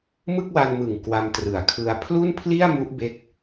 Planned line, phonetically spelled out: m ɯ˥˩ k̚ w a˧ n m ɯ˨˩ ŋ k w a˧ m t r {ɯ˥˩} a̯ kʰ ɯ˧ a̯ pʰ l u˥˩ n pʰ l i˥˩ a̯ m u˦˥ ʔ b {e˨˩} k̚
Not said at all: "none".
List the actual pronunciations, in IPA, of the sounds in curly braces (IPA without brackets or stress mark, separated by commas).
ɯ˨˩, e˦˥